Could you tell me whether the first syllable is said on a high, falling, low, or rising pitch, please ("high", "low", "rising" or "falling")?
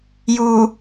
low